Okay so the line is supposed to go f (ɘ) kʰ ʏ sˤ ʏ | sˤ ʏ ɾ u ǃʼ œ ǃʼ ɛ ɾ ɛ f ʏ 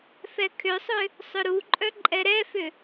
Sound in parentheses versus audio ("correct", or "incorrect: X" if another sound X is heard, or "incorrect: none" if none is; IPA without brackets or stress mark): incorrect: ɛ